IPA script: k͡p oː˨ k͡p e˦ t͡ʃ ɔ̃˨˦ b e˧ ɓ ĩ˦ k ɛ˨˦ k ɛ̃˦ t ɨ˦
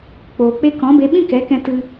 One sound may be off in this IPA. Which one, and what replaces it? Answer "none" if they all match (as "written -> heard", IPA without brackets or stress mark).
t͡ʃ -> k